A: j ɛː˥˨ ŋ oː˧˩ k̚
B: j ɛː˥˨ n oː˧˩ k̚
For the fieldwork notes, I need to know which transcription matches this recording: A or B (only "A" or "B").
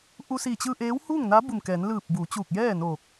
B